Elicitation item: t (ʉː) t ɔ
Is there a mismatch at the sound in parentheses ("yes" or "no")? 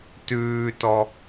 no